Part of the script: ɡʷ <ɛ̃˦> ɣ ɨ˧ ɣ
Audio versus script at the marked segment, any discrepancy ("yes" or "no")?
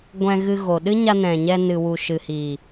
yes